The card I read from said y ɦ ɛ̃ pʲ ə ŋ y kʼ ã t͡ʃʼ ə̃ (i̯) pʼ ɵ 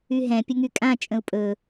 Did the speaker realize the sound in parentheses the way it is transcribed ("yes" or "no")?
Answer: no